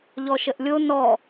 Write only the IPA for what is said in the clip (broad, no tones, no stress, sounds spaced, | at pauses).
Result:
ʎ ɔ ʃ ə ʔ lʲ o n ɔ